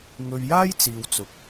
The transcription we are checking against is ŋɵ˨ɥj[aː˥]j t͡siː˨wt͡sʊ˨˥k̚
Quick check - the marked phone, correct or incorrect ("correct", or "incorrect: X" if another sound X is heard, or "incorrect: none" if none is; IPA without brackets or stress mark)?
correct